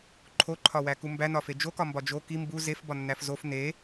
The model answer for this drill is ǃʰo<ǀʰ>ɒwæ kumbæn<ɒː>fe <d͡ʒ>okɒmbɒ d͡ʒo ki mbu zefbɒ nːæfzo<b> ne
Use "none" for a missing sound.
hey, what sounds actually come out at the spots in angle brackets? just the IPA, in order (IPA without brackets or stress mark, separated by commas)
ǃʰ, ɒ, d͡ʒ, f